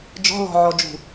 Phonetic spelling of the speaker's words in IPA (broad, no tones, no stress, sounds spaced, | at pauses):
d͡ʒ ɔ̤ l ɔ̤ ʕ ɔ d͡ʒ ṳ